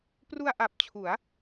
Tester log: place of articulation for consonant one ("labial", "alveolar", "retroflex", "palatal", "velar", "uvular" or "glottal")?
labial